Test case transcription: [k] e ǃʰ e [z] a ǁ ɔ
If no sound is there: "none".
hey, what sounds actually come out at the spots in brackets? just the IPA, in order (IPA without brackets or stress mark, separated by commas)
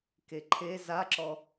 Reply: k, z